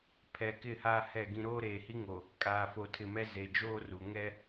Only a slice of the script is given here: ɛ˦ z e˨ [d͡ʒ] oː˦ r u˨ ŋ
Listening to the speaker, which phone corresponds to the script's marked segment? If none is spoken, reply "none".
d͡ʒ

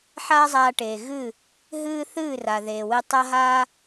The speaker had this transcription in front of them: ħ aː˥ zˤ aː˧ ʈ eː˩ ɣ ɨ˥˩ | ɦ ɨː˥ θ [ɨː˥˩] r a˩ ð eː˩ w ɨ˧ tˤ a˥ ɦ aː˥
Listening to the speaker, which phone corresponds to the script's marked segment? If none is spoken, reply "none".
ɨː˥˩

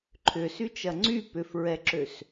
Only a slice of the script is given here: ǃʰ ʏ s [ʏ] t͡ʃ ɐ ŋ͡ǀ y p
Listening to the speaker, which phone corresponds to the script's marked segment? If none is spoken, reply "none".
y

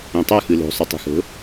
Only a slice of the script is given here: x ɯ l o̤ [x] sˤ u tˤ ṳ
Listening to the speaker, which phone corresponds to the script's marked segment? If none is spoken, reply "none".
none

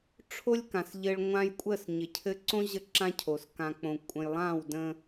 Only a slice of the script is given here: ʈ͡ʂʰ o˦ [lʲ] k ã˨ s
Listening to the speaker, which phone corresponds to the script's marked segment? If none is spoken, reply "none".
lʲ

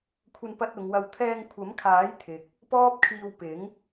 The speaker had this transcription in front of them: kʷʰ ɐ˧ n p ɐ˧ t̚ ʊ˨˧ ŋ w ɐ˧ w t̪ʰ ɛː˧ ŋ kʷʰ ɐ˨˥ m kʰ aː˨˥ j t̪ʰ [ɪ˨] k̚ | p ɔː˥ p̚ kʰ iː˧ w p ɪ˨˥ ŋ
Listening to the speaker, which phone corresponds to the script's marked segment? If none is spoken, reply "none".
ɪ˨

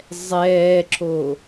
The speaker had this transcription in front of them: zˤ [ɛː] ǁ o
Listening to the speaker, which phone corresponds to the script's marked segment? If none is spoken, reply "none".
ɛː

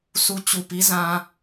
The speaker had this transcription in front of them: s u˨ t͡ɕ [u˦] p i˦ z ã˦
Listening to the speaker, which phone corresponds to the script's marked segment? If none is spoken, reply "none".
u˨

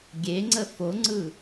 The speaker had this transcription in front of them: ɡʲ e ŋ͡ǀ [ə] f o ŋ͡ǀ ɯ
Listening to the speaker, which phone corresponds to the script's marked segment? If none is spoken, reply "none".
ə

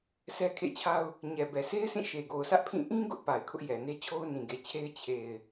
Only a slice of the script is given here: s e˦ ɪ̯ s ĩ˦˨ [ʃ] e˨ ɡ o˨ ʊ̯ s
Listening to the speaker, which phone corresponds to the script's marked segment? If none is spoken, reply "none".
ʃ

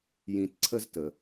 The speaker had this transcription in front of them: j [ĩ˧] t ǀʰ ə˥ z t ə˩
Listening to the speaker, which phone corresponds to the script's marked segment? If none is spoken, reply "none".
ĩ˧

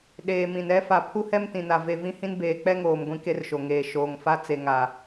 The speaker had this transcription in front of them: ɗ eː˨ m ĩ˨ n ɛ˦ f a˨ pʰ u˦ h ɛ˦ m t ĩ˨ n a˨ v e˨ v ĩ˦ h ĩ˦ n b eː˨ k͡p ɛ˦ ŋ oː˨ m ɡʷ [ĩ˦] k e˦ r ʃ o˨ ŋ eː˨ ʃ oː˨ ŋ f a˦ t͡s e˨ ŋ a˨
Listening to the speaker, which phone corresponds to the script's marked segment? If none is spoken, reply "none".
ĩ˦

